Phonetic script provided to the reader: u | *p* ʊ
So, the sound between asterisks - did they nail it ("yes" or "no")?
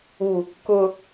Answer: no